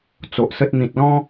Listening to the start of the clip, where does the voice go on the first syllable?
low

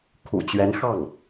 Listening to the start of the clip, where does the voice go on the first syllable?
low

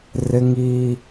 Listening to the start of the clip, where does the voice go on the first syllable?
high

